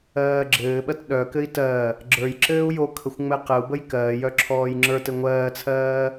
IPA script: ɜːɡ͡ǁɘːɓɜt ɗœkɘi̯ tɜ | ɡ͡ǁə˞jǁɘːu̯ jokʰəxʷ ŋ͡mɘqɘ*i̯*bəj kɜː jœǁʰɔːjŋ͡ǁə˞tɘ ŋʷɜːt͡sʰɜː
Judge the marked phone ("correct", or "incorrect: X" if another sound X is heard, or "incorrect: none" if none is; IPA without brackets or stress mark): incorrect: u̯